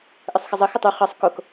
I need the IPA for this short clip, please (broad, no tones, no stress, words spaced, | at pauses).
ʔəsˤxəzˤə xətˤu χɤsˤ kok